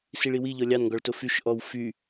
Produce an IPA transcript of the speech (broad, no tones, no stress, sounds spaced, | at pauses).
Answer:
s i ɭ i w i ʎ ɔ lʲ ɑ n ŋ ɡ ɔ ɭ t o f y ʃ ʔ ɔ w f y